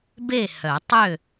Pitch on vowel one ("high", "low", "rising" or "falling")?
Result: falling